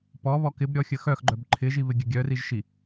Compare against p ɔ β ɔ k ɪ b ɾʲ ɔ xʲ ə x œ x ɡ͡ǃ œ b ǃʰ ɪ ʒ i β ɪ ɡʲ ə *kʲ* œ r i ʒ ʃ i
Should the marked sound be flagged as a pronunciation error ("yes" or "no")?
yes